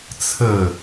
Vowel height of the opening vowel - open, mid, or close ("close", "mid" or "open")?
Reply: mid